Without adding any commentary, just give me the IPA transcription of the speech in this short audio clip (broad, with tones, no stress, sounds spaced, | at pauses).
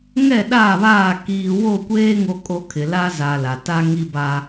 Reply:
ŋ ɛ˦˨ ɗ a˦˨ β aː˦˨ k iː˨ w o˦˨ kʷ eː˦ ŋ o˦ kʼ o˦ kʰ ɪ˨ l a˦ z a˨ l a˨ t a˦ ŋ i˦ b a˦